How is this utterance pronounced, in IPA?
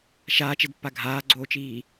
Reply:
ʃ aː t͡ʃ e d pː a ɡʱ aː ɡ͡ǀ oː t͡ʃ iː

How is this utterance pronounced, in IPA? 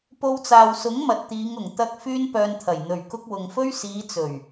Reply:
p o˧ w t͡s aː˨ w s ʊ˨˥ ŋ m ɐ˨ t̚ t̪ iː˨˧ ŋ ʊ˨˩ ŋ t̪ ɐ˧ k̚ f yː˥ n p œː˧ n t̪ʰ ɐ˨˩ j n̪ ɵ˨˩ ɥ k ʊ˧ k̚ w ʊ˨ ŋ f ɵ˥ ɥ s iː˨˧ t͡s ɵ˨˩ ɥ

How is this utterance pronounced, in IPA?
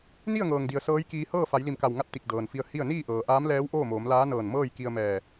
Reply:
n i˥˨ ə̯ ŋ ɤː˩ ŋ d i˩ ə̯ s ɤː˧˥ j k iː˧ h ɤː˥˨ f a˩˧ j l i˧˩ m k a˧˩ w ŋ a˥˨ t̚ t̪ i˧˩ k̚ d ɤː˩ n f i˧ ə̯ h i˥˨ ə̯ n iː˥˨ ʔ ɤː˩ ʔ aː˧˥ m l ɛː˧˥ w ʔ oː˥˨ m oː˩˧ m l aː˧˥ n ɤː˧˩ n m ɤː˥˨ j k i˧ ə̯ m ɛː˧˩

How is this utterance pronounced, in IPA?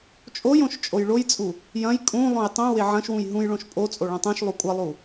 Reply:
t͡ʃʼ o j õ ʃ t͡ʃʼ o j ɭ o j t͡sʼ u | j ɐ̃ j kʼ ũ lˠ õ j tˤ õ w e ʕ ɐ̃ ʃ w ũ j ɦ ũ j ɭ õ ʃ pʼ o t͡sʼ o ɭ ɐ̃ tˤ ũ ʃ lˠ u kʷʼ ɐ lˠ u

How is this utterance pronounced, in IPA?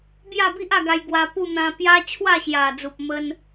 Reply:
b j a˥˧ b i˦ ʔ a˥˧ ɡ a˧ j ɡ w a˧ p u˥˧ n̪ ã˧ p j a˦ t͡ɕʰ w a˥˧ ɕ j a˨˩ d͡z u˨ p̚ m ə˦ n

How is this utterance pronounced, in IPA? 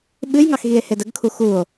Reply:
ɓ ɨ j ŋ ɑ x ɣ i e̯ h e d ə ɡ kʰ u x u o̯

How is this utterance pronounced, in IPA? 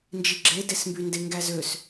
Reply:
n d͡ʒ i ɡ͡ǁ e d e s m b y n d e ŋ ɡ æ z ø s

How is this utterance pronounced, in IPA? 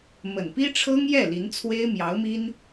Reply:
m ə˨˩ n p i˥ ʈ͡ʂʰ ɤ˥ ŋ j ɛ˥˩ l i˧˥ n t͡sʰ w e˥ ɪ̯ m j ɑ˧˥ ʊ̯ m i˥ n

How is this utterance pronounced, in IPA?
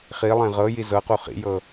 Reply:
χ i lˠ ẽ ʁ ɤ j i z ɤ q u χ ḭ j ɤ

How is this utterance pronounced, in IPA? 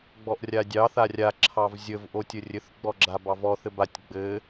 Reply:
ɡ͡b ɔ ʔ rʲ a dʲ ɑ θ a rʲ a ǁʰ ɑ v zʲ ə v ʔ o tʲ ə rʲ ɘ θ ɡ͡b ɔ ɡ͡ǁ a b ɑ v ɔ θ ɘ b a tʲ ɡ͡b ɘ

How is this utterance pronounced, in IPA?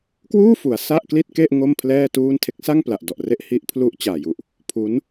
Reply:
k w uː˥˩ f u˩˦ a̯ s a˥˩ ʔ k l i˥˩ t̚ k e˥˩ ʔ ŋ o˥˩ m pʰ l ɛː˥˩ t uː˥˩ n tʰ e˦˥ k̚ s a˥˩ ŋ p l a˨˩ ʔ d ɔ˨˩ ʔ r e˦˥ ʔ h i˦˥ ʔ pʰ l u˦˥ ʔ t͡ɕ aː˨˩ j u˨˩ ʔ | pʰ uː˦˥ n

